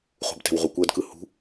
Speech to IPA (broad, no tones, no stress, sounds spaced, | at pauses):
χ ṳ b t ɛ̤ w ʁ u kʷ ɜ d k ɯ h ṳ